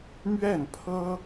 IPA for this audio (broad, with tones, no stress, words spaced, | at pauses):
mɥɛ˥˩npʰɤ˥